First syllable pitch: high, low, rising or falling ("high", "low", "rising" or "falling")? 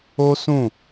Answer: high